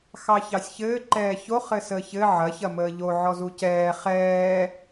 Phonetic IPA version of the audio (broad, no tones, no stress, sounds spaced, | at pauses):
x ɑ ç ɑ sʲ ç ɘː ǃ ɛː ç o χ ɘ s əː ç ɘ ʕ ɐ ç ɐ m əː ʎ o ʕ ɔ z u c ɛː χ ɛː